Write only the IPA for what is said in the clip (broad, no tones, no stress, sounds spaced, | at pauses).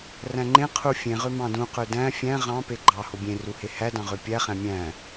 r æ̃ ŋ͡ǃ ẽ qʰ u fʲ ẽ ʁ ø m ɑ̃ d ũ q ø d æ̃ fʲ æ̃ ʁ ɑ̃ p e ɡ͡ǃ ɑ h o bʲ ẽ r u h e h æ d ɑ̃ ʁ ø pʲ æ χ æ̃ mʲ æ̃